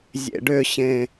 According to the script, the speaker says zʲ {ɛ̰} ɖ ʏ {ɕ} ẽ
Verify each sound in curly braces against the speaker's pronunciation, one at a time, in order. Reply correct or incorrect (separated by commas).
incorrect, correct